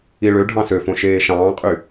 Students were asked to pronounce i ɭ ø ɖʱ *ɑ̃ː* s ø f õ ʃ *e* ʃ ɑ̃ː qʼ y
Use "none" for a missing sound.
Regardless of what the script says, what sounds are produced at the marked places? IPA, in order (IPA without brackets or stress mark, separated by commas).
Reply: ɑ̃, eː